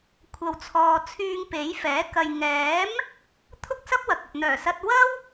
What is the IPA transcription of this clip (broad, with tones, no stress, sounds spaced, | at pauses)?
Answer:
kʷʰ ɐ˨ w t͡sʰ ɔː˨ t͡sʰ yː˧ ŋ p e˨˥ j f ɛː˨˥ k ɐ˨ j ŋ ɛː˨˥ m | t̪ʰ ʊ˥ k̚ s ɐ˥ p̚ w ɐ˨ k̚ ɐ˨ p̚ n̪ œː˨˩ s ɐ˧ t̚ w ɐ˥ w